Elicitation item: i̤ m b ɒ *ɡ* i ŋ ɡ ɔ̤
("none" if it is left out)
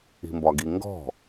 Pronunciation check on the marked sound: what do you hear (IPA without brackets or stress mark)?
ɡ